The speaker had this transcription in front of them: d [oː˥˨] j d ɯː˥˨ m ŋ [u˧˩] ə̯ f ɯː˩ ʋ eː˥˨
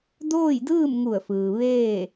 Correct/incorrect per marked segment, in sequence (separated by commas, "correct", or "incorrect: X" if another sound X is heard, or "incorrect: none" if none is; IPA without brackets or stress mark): correct, correct